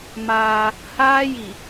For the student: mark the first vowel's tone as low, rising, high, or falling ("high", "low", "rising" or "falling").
high